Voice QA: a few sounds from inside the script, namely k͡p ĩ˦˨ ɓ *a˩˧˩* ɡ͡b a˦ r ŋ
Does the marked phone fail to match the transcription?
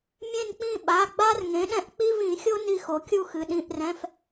no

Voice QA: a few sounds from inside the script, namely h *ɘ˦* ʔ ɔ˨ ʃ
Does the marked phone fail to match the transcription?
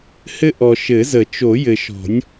no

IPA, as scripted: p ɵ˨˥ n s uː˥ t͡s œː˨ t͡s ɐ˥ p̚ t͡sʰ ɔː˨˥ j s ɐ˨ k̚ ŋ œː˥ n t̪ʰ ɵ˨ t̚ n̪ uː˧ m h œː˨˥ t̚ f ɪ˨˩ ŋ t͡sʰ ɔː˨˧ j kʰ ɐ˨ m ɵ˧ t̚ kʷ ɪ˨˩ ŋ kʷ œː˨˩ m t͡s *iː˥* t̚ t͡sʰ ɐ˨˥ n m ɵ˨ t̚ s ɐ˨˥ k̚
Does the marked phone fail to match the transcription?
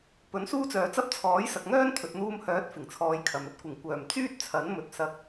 yes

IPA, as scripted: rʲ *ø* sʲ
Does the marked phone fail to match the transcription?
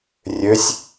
no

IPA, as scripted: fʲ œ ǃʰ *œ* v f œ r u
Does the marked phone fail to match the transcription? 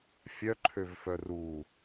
yes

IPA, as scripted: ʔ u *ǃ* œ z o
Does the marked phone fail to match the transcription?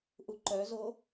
no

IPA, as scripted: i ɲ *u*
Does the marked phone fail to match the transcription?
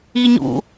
yes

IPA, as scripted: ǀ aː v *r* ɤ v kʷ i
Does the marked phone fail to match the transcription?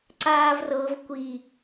no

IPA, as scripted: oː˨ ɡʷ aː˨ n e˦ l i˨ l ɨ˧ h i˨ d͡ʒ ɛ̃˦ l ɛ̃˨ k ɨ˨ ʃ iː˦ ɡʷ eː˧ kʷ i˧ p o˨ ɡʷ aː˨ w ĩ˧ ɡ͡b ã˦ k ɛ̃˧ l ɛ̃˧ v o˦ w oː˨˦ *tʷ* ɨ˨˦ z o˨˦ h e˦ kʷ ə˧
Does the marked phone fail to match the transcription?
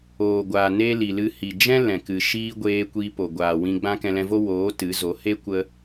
yes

